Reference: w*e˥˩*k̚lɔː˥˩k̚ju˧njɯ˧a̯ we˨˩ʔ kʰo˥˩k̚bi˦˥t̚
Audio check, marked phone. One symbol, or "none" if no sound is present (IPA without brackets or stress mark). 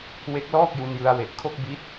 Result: e˦˥